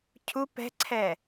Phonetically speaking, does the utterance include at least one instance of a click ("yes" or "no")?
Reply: yes